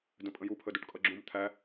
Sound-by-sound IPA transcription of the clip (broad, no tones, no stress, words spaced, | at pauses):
də̃pʼə̃ju pʰəduʈkʼʌɡ͡ǁũm t̪ʰæ